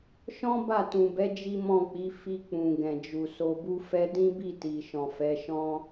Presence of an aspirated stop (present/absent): absent